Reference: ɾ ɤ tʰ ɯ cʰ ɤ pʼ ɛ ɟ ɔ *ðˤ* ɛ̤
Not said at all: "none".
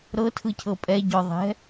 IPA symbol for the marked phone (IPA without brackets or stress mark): ðˤ